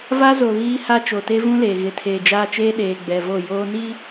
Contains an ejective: no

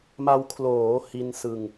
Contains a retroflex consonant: no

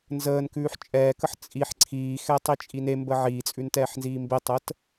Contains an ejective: yes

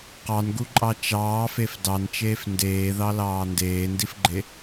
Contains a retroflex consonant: no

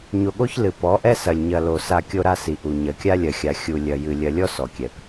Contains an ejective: no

